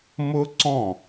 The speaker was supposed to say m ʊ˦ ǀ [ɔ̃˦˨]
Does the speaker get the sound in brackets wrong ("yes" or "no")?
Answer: no